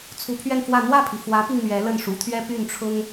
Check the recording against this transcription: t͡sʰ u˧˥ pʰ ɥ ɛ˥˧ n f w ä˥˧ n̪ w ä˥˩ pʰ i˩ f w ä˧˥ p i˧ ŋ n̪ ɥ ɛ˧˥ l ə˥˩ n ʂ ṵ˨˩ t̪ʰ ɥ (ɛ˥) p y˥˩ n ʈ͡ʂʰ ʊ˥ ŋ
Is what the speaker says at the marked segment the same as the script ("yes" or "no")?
yes